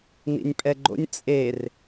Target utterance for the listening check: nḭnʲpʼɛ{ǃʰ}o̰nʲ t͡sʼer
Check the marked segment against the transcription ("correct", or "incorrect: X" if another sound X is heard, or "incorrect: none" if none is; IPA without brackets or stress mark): incorrect: ɡ͡ǃ